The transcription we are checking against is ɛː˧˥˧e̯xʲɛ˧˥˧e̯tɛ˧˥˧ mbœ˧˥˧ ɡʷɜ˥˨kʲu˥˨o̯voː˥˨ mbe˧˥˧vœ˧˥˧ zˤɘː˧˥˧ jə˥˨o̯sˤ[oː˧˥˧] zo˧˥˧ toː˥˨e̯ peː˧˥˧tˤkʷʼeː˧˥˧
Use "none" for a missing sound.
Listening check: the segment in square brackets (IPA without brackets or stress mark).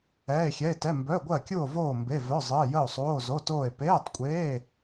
oː˧˥˧